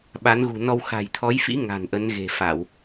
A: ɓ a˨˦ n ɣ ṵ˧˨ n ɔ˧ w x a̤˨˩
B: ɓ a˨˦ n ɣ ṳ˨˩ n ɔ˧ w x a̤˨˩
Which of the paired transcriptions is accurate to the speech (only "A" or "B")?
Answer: B